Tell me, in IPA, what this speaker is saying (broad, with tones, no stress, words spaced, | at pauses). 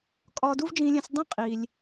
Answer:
kʼɒː˧du˥vd͡ʒĩː˧lʲẽ˧s dˤĩ˥qʼiː˩lʲ